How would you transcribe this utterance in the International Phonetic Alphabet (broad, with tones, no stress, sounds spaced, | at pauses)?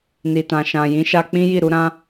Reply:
n i˨ t ã˨ ʃ ã˨ j ĩ˨˦ ʃ a˧ k͡p ĩ˦ j i˦˨ ɾ u˧ ɾ ã˧